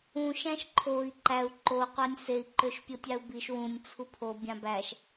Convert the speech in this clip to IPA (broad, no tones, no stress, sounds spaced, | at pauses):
ũ ʃ æ̃ ʃ ǃʰ o i̯ ǃ æ u̯ ǃ o qʷ æ nʲ s e i̯ ǃ ø ʃ pʲ o tʲ ɑ u̯ b i ʃ w ũ nʲ t͡sʰ u pʰ o bʲ ɑ̃ b æ ʃ